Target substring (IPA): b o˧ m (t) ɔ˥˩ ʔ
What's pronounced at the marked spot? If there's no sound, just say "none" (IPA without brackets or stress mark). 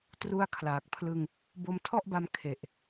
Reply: tʰ